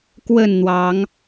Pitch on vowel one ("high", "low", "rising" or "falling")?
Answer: falling